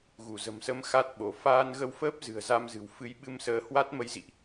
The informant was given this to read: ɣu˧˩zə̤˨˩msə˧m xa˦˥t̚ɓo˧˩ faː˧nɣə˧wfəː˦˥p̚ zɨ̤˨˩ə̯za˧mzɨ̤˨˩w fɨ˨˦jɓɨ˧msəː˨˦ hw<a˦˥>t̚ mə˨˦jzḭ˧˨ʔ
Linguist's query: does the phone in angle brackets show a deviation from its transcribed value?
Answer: no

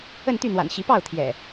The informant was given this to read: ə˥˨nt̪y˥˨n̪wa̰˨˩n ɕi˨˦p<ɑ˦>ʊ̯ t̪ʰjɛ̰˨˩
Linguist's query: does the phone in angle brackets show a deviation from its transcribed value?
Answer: yes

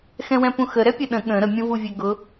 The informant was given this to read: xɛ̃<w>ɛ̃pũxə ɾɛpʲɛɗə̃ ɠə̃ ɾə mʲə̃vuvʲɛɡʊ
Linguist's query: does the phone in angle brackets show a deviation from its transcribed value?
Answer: no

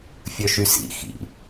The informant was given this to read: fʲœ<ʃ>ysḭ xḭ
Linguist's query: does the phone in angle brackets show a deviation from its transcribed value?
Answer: no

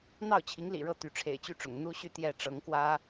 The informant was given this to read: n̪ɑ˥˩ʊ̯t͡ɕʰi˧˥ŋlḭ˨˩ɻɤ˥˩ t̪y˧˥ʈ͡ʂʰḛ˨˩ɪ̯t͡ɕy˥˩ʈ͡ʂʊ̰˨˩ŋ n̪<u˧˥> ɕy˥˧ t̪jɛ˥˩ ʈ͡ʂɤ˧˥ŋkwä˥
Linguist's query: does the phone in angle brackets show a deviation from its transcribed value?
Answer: yes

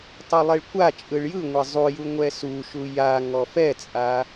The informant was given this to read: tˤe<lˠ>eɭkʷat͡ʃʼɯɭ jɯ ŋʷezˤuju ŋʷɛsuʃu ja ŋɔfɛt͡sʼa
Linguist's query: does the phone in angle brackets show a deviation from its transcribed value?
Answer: no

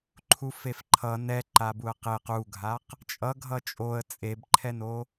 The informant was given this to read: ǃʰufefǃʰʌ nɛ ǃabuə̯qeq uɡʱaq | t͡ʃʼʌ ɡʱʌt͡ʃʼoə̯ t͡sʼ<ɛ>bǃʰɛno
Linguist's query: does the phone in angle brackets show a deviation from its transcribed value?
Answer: yes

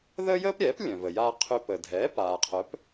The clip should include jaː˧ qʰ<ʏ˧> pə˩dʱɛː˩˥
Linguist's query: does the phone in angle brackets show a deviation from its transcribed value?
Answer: no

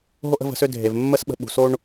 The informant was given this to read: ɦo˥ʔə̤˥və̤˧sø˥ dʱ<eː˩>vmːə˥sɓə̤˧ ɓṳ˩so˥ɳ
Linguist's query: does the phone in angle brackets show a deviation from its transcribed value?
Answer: yes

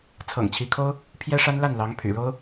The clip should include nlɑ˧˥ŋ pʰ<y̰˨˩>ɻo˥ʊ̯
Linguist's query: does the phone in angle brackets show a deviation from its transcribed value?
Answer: no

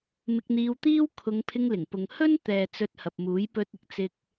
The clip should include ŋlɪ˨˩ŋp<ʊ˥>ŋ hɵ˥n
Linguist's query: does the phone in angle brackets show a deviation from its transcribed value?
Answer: yes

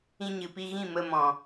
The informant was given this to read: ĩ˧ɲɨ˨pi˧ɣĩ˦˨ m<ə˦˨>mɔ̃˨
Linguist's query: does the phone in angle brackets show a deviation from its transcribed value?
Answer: yes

